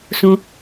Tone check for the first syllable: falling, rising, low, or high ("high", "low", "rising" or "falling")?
low